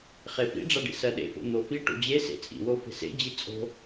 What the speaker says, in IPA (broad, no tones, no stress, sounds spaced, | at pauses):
χ e f ḭ ɖ͡ʐ a ɖ ḭ s ɜ ɗ ḛ f o̰ n̪ o f i ʈ o̰ d͡ʑ e s ḛ t͡sʼ ḭ w o f e̤ s ḛ d͡ʑ i t͡sʼ o̤